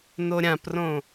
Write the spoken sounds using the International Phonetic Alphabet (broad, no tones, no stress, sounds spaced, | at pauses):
n o ɾʲ ã p r õ